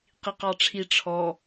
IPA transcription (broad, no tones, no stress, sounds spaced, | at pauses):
q i q ɑ ʈ͡ʂʰ i ʈ͡ʂʰ ɔ